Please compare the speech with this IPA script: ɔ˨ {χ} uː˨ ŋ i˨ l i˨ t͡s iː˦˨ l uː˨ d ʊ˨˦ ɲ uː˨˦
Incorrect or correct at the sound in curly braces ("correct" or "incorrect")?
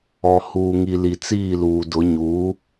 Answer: incorrect